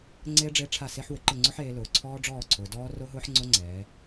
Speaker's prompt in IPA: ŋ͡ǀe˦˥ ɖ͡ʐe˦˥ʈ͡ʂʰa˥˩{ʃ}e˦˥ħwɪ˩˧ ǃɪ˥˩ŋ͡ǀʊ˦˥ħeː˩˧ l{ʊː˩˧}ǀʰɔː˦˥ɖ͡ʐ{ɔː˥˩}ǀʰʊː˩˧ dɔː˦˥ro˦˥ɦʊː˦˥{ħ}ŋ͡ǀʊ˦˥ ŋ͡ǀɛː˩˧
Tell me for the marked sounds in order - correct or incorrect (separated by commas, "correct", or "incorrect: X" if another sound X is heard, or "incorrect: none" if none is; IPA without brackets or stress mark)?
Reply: incorrect: s, correct, correct, correct